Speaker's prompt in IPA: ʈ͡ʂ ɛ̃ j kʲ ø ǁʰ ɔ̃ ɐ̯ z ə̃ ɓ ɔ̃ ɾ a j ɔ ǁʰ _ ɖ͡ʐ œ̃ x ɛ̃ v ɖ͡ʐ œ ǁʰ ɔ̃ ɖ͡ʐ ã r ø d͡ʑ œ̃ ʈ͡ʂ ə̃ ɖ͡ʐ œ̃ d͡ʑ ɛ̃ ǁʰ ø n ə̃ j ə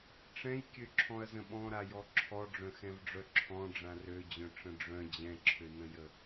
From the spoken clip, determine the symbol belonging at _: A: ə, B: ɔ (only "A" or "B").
B